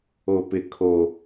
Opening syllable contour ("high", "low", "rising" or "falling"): low